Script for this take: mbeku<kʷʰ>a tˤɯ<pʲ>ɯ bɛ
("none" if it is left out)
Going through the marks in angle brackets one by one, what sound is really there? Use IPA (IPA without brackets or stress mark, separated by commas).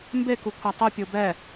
kʷʰ, pʲ